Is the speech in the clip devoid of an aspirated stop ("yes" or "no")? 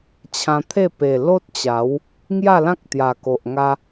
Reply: no